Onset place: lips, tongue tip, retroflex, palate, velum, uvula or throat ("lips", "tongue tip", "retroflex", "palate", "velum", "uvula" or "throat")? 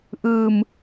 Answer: throat